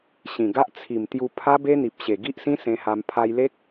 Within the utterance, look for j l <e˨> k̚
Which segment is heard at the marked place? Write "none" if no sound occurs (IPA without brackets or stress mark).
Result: e˦